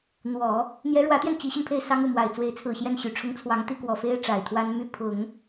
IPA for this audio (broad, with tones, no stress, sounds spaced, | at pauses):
n̪ w ɔ˨˩˦ | n̪ j ɛ˧˥ ɻ w ä˧˥ t̪ j ɛ˧ n t͡ɕ i˧˥ ɕ y˧ n pʰ e˥˩ ɪ̯ s ɑ˥ ŋ u˥˩ m w a˨˩ ɪ̯ t͡s w e˧˥ ɪ̯ t͡sʰ ɹ̩˨˩ ɕ j ɛ˥˩ n ɕ y˨˩ ʈ͡ʂʰ ʊ˥ ŋ t͡sʰ w ɑ˧˥ ŋ t̪ i˥ k w ɔ˨˩ f e˥ ɪ̯ ʈ͡ʂ a˨˩ ɪ̯ t̪ʰ w a˥ n m y˥˩ pʰ ʊ˨˩˦ ŋ